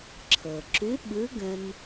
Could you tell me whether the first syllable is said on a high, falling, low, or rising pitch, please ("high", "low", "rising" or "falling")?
low